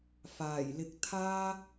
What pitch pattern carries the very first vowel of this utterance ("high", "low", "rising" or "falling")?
low